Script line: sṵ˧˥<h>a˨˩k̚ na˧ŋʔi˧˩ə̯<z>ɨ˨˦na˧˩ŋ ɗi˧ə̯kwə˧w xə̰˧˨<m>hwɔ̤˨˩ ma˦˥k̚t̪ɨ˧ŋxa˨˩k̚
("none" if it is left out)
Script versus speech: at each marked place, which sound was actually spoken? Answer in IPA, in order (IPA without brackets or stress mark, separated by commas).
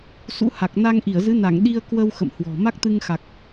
h, z, m